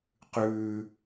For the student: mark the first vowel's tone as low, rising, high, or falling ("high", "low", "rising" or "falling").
high